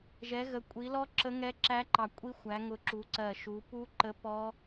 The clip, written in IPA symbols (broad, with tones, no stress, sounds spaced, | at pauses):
ʒ ɛ˨˦ ɣ ə˨˦ kʷʼ i˨˦ l ɔ˦˥ ǁ ə˦˥ ŋ ɛ˦˥ ǁ æ˦˥ ǃ ɑ˧˩ kʷʼ i˦˥ xʷ æ˨˦ ŋ ʊ˧˩ ǁ u˨˦ ǀ ɜ˧˩ ʃ u˨˦ p u˦˥ ǃ ə˦˥ p ɔ˦˥